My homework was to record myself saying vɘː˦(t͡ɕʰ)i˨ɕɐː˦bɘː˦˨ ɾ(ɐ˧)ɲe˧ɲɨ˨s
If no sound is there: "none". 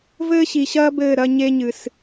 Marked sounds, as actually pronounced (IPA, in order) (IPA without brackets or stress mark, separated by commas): ɕ, ɐ˧